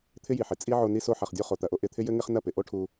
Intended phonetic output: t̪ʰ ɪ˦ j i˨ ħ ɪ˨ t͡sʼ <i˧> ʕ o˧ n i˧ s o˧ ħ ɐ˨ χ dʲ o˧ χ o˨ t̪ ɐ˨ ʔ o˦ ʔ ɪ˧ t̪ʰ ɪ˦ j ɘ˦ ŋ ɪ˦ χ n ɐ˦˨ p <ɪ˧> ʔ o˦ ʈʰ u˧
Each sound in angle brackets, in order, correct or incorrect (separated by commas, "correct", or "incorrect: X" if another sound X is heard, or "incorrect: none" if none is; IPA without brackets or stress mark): incorrect: i˦, incorrect: ɪ˨